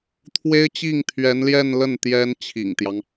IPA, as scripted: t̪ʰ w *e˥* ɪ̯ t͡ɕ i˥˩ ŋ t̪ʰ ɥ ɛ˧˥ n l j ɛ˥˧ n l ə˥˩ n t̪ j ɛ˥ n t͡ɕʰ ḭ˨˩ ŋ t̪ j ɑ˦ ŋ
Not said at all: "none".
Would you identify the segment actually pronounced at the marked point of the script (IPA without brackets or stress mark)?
e˥